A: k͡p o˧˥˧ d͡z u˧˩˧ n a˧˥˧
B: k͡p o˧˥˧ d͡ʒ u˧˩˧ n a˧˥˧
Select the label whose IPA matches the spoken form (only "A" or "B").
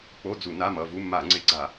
A